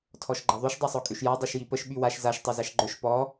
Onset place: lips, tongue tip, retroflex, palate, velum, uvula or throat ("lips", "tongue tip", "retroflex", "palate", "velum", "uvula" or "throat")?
tongue tip